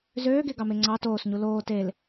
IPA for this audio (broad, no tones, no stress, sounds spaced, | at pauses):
z øː ɡ e ɡ ɑ m e ŋ͡ǀ ɑ t oː s ɲ u l oː t e l